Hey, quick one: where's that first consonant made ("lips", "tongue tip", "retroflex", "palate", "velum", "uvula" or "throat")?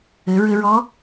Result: tongue tip